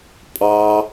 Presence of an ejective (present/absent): present